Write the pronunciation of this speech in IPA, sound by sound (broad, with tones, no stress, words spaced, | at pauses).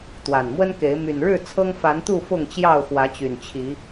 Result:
t̪wa˨˩nmwə˦nke˨˦ɪ̯ my˨˩nɻɻ̩˥˨ t͡sʰɤ˦ŋfa˨˦nt̪u˥˨ fʊ˥˨ŋt͡ɕjɑ˥˨ʊ̯ xwä˨˦t͡ɕy˨˩nt͡ɕʰi˨˦